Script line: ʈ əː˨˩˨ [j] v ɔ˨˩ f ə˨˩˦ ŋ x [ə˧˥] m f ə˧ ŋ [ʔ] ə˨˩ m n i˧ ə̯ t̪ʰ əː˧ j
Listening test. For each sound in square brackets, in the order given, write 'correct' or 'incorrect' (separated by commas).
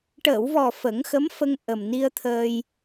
incorrect, correct, correct